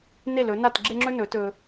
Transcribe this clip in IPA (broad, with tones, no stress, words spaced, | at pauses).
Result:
ne˦˨lɵ˨˦ na˦˨tɡ͡ǁe˦ŋ͡ǁɵ˦ nɵ˨˦tɵ˧